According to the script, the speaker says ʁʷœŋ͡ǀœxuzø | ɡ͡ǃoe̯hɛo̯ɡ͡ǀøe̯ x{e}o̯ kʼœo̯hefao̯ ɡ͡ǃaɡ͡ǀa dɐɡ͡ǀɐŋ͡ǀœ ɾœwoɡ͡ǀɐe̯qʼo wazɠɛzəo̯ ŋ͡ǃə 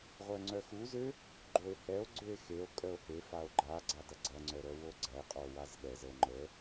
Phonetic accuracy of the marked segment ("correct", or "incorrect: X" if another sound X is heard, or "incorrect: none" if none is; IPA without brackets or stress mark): correct